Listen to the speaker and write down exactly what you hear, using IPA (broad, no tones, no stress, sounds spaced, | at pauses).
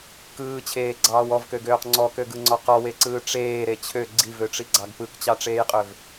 k ɯː t͡ɕʰ eː ɡ͡ǀ ɑː w ɔ v k ø ɡ øː q ŋ͡ǀ ɔ k ø ɡ ɯ ŋ͡ǀ ɔ q ɔ w e ǀ ɯː ʈ͡ʂ eː ɾ e t͡ɕʰ ø ɡ͡ǀ i v ø ʈ͡ʂ i ɡ͡ǀ ɑ ɡ p ɯ k t͡ɕ ɑ ʈ͡ʂ eː j qʼ ø v